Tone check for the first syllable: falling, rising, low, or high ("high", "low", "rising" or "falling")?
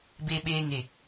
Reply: low